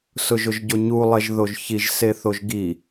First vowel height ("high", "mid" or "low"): high